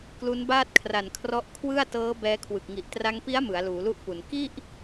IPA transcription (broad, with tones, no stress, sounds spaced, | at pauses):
k l u˦˥ n b aː˥˩ t̚ kʰ r a˨˩ n kʰ r ɔ˦˥ ʔ kʰ w ɯ˥˩ a̯ t ɤː˦˥ b ɛː˦˥ kʰ w ɯ˨˩ k̚ ŋ i˨˩ ʔ t r a˧ ŋ p i˦˥ a̯ m ɯ˩˦ a̯ l uː˩˦ l u˥˩ ʔ p u˩˦ n k i˥˩ ʔ